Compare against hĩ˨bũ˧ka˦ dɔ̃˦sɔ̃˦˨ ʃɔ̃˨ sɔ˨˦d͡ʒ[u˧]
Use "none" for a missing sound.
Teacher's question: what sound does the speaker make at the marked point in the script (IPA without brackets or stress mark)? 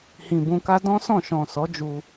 u˧